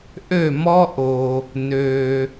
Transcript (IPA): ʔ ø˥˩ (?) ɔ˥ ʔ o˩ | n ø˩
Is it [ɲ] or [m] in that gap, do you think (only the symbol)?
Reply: m